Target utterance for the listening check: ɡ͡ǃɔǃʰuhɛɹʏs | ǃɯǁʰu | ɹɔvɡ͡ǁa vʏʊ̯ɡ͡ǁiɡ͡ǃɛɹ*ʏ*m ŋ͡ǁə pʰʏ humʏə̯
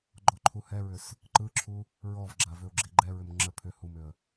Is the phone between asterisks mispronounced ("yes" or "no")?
no